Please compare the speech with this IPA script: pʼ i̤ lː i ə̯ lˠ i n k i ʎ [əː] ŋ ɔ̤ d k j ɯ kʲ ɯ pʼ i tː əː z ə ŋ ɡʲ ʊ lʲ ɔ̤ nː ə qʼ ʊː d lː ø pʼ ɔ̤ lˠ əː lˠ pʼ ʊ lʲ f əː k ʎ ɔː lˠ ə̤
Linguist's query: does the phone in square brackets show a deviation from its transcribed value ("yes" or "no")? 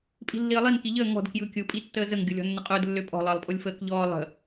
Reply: no